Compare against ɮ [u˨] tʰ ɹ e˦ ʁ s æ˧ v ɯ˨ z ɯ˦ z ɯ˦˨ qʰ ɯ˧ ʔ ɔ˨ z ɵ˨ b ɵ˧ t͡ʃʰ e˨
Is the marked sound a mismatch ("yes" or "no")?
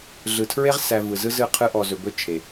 yes